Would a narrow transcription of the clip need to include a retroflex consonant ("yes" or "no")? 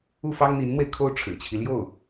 yes